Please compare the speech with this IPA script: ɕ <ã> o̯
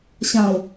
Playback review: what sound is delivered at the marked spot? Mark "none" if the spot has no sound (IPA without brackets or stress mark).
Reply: ã